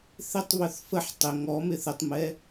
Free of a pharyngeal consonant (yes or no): no